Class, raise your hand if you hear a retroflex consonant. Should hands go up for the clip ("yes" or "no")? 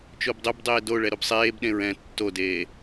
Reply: yes